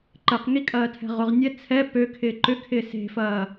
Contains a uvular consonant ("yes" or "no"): yes